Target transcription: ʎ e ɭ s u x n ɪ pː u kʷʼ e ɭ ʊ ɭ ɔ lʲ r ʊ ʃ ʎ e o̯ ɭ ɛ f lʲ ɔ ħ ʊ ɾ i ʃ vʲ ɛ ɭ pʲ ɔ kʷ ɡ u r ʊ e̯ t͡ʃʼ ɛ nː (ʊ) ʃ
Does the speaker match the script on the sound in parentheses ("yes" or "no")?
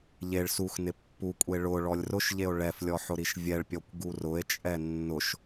yes